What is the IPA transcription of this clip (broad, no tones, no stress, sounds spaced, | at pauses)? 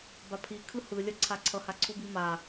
b a pʰ i kʰ ɯ h ɯ lʲ ʌ ǀʰ a ǀʰ ʌ h a ǀʰ u b i m a